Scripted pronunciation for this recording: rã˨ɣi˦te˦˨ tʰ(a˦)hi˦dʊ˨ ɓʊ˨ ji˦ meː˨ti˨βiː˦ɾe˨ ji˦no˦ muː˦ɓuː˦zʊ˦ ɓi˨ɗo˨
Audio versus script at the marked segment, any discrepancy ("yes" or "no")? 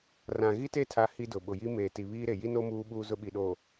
no